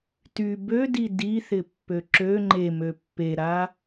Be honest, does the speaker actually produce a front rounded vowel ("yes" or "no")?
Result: yes